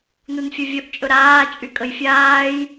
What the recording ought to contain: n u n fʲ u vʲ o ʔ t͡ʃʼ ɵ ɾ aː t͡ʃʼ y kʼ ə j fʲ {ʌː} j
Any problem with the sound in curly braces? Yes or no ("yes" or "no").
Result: yes